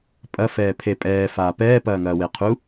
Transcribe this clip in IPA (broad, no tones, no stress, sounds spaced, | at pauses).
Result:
pʼ ɐ f ɛː pʰ e pʼ ɛː f aː p ɛː p ɐː ŋ ɐː w e qʰ u